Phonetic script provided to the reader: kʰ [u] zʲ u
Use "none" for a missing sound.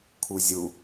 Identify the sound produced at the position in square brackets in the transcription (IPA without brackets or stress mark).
u